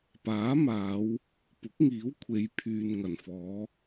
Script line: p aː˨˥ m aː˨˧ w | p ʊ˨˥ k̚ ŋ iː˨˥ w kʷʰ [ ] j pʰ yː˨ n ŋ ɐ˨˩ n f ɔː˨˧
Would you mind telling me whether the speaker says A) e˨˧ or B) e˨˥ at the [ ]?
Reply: A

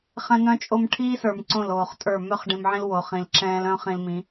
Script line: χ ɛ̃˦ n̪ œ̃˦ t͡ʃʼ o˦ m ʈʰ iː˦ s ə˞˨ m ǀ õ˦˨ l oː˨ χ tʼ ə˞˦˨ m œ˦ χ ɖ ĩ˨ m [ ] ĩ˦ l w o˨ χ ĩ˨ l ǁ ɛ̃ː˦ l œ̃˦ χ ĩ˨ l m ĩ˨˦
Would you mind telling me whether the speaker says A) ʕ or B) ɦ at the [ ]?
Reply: A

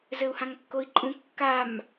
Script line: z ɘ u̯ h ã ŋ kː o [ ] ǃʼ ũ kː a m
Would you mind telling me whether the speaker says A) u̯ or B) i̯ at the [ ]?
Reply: B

